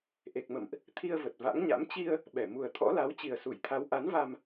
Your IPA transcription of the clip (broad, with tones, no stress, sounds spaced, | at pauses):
ʔ e˨˩ k̚ m ə̰˧˨ m ʔ | t̪ʰ i˧ ə̯ v ə˨˩ t̚ v a̰˧˥ ŋ ɲ a̰˧˥ m t͡ɕ i˧ ə̯ | ɓ ɛ˧˩ m u˨˩ ə̯ t̪ʰ ɔ̰˧˥ l a˨˦ w t͡ɕ i˨˩ ə̯ s u˧˩ j t̪ʰ a˨˦ w ʔ a˨˦ n v a˧ m